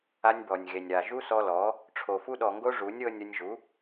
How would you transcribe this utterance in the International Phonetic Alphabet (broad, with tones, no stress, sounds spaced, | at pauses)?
a˧ nʲ b ɔ˨ nʲ ɣ e˨ nʲ ɾ a˨ ʒ u˦ s ɔ˧ l ɔ˨˦ | ʈ͡ʂʰ o˨ f u˧ ɗ ɔ˨ ŋ ɡ o˧ ʐ u˨˦ nʲ ɤ˧ nʲ o˧ nʲ ʒ u˨˦